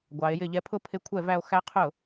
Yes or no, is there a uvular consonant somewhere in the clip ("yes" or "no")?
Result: yes